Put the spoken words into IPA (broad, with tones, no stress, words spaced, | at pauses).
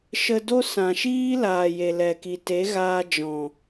ʃə˧do˦ sã˨ʃiː˦laː˨ je˨lɛ˨ki˨ te˨˦ɣaː˧ d͡ʒɔ̃˨